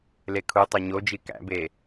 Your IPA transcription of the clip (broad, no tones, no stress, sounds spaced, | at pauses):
l e kʰ u tˤ o ɲ o d͡ʒ i k æ̰ b e